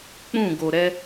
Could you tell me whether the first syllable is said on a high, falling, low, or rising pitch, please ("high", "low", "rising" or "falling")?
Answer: falling